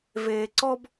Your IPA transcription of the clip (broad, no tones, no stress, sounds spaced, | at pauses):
v eː ǀ ɔ b